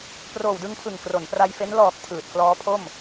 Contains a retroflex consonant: no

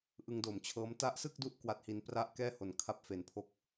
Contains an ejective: no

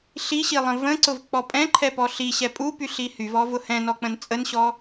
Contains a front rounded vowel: yes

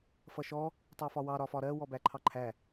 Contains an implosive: no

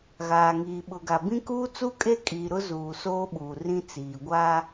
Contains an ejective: yes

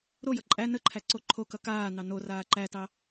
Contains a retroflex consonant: no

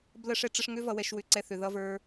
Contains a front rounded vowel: yes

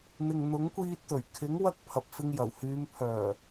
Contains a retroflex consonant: no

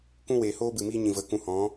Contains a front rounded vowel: no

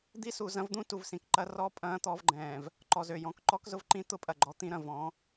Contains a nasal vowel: yes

